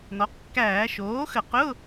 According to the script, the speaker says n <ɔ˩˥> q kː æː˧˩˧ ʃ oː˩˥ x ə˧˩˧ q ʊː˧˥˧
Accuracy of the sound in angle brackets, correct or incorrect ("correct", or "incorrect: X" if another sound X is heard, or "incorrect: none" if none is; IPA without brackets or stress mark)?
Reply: correct